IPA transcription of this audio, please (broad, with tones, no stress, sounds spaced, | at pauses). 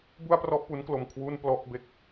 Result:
b u˥˩ a̯ p r ɔ˥˩ ʔ p u˦˥ n k l o˧ m kʰ w u˥˩ n p l ɔ˥˩ ʔ b e˥˩ k̚